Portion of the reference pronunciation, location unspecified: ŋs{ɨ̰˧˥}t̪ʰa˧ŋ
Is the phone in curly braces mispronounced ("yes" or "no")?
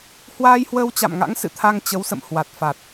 yes